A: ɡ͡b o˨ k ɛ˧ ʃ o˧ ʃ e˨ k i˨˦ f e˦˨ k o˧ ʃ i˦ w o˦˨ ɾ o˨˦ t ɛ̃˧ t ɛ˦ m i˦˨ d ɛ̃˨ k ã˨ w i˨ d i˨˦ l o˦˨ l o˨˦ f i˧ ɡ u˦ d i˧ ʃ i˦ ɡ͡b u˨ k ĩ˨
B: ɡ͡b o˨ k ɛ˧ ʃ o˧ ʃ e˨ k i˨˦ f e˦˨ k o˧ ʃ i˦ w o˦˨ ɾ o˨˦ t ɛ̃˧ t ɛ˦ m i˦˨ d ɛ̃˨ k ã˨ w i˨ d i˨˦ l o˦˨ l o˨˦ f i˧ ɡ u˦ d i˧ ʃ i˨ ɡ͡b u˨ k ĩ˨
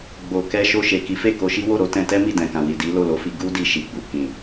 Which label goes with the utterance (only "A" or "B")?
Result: B